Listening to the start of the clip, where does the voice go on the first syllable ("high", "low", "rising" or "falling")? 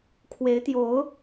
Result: rising